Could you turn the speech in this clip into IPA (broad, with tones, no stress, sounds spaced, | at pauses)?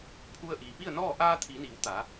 pʰ u˧ ə̯ ʔ iː˩ p i˥˨ ə̯ n ɔː˥˨ ʔ aː˧ t̪ʰ iː˩˧ n iː˩˧ w t̪ aː˩˧